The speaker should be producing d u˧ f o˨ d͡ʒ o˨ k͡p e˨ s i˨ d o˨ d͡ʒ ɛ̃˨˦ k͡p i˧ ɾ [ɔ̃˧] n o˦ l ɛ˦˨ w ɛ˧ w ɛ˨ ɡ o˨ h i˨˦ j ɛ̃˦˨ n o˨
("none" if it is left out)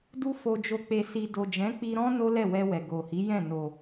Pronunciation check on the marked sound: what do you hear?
ɔ̃˦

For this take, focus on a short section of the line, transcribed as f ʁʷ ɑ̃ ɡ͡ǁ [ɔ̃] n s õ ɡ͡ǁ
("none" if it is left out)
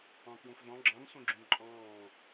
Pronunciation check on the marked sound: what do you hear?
ɑ̃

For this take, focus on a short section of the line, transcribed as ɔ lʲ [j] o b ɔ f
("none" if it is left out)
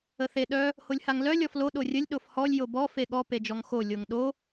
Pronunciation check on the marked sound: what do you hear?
j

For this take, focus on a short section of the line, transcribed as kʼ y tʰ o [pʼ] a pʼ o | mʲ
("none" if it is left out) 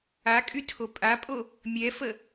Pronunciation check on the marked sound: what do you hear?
pʼ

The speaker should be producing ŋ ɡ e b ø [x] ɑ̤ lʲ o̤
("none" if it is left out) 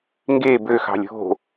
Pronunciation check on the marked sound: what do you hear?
x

